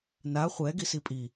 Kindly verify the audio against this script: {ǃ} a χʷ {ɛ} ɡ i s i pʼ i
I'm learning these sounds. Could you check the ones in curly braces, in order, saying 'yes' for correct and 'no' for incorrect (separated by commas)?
no, yes